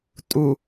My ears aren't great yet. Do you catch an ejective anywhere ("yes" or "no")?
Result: yes